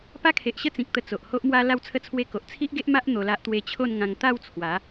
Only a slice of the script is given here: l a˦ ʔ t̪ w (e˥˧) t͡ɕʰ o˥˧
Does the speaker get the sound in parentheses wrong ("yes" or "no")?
yes